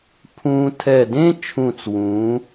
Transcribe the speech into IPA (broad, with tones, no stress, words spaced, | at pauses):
pʰũː˧ tʰɛ˧˩dẽ˥t͡ʃʰũ˧˩t͡swũː˩˧